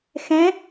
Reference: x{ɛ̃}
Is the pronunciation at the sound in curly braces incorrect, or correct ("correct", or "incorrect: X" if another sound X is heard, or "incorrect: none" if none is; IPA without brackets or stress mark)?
correct